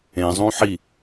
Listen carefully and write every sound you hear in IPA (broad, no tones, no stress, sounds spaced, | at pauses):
ẽ zˤ ũ ħ i